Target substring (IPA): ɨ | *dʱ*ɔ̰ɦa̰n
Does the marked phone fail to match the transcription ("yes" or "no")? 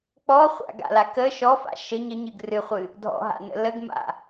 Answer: no